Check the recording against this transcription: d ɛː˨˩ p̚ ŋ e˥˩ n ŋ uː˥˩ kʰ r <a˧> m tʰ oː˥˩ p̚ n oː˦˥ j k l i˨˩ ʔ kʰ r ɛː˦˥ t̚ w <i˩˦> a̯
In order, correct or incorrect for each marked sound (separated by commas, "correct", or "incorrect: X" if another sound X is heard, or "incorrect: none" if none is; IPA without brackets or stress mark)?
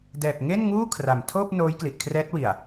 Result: incorrect: a˨˩, incorrect: i˨˩